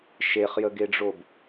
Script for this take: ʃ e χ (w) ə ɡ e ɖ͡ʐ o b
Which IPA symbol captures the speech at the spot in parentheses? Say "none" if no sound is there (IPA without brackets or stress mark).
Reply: j